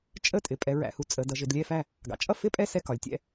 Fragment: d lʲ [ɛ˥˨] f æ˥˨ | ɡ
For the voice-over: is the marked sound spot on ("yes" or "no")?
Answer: yes